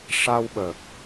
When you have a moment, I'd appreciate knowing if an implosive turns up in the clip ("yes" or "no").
yes